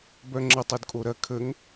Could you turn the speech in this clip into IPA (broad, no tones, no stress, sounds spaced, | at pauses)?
b œ ŋ͡ǁ ə tˤ u d kʼ o ɾ ɐ kʰ ə ŋ